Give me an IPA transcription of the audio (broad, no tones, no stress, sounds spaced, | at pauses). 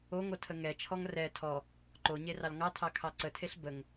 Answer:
o ŋ o tʰ ə ŋ ɛ t͡ʃʰ ɔ ŋ r ɛ tʰ ɔ | ǃ o ɲ e r ɑ l ŋ ɑ tʰ ɑ kʰ ɑ ǀ ə tʰ e ɬ b ə ŋ